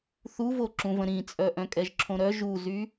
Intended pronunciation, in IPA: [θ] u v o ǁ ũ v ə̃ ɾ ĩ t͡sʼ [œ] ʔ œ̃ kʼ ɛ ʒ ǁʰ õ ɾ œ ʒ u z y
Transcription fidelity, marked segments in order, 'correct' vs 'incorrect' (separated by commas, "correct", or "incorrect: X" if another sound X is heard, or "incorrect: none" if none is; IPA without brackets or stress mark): correct, correct